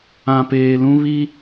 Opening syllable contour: low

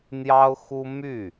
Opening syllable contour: high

